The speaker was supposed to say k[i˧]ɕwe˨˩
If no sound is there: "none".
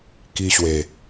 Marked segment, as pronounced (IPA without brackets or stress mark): i˧